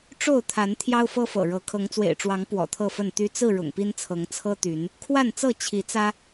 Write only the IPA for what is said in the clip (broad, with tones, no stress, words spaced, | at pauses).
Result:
ʈ͡ʂo˥˨ʊ̯t̪ʰa˨˦n t̪ʰjɑ˦ʊ̯fɤ˦fɤ̰˨˩ɻɤ˨˦ kʰɤ˨˦ŋt͡swḛ˨˩ɪ̯ʈ͡ʂwɑ˨˦ŋ pwɔ̰˨˩t̪ʰɤ˥˨fə˥˨n t̪y˦ t͡sɹ̩˥˨ ɻʊ̰˨˩ŋpi˦nt͡sʰɤ˨˦ŋ t͡sʰɤ˦t̪y˨˦n | kʰwa˥˨nt͡sɤ˥˨ t͡ɕʰi˨˦t͡sä˦